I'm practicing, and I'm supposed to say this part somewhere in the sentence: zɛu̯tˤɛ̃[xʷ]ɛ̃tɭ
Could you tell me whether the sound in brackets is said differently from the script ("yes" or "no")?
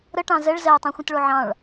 no